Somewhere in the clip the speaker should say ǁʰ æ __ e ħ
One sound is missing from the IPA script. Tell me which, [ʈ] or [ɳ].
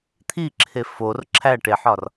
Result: ʈ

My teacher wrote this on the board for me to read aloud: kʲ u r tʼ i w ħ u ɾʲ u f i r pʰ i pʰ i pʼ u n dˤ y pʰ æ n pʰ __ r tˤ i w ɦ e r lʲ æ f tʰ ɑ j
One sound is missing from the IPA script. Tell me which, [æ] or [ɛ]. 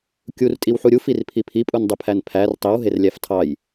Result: æ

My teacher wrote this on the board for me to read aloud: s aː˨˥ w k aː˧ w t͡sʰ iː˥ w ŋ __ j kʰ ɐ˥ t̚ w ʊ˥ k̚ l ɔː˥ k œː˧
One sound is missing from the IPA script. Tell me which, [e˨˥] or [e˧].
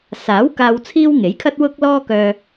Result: e˨˥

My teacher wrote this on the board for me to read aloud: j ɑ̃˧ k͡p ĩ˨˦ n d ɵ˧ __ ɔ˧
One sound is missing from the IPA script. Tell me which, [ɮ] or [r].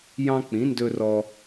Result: r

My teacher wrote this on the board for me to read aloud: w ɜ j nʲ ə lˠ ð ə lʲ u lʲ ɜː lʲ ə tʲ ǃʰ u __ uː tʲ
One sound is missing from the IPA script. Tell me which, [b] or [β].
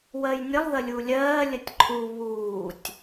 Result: β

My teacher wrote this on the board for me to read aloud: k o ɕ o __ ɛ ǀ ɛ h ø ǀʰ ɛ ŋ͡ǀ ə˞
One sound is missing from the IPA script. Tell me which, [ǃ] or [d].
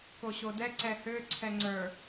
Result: d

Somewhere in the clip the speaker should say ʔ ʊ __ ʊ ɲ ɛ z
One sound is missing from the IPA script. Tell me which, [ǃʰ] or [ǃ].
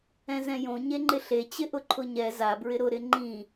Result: ǃʰ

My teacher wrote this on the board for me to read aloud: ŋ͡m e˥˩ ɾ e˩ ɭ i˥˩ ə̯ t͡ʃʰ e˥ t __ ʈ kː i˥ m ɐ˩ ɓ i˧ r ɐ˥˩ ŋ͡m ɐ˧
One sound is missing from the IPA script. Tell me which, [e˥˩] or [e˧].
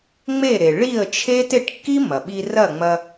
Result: e˥˩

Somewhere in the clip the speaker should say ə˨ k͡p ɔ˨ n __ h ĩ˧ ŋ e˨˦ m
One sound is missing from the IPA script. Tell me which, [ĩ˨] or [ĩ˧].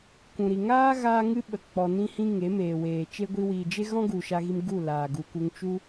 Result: ĩ˧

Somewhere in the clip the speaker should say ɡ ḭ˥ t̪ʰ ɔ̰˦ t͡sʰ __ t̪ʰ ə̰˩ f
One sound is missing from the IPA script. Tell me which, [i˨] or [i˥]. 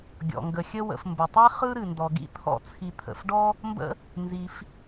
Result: i˨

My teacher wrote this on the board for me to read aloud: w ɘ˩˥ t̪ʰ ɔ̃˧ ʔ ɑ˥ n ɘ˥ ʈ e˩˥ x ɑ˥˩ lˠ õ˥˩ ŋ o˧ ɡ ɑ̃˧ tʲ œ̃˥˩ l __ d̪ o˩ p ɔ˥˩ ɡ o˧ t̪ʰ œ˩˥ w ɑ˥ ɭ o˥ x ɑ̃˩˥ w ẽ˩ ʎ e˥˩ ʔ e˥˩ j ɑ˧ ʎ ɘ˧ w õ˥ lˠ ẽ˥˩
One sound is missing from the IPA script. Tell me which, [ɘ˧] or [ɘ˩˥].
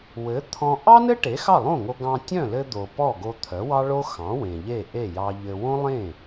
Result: ɘ˧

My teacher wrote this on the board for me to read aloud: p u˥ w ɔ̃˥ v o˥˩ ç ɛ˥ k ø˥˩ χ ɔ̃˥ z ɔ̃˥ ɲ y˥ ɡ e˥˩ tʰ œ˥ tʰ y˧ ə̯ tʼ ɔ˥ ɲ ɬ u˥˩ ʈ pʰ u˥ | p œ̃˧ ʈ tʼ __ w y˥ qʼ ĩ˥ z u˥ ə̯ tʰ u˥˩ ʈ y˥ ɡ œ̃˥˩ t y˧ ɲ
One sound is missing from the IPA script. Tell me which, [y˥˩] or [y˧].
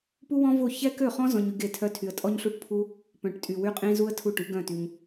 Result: y˧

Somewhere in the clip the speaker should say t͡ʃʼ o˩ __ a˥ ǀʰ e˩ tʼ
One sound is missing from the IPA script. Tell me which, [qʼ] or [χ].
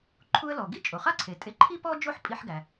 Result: χ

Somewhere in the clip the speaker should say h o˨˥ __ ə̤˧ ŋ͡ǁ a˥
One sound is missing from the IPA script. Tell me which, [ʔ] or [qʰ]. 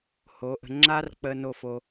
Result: ʔ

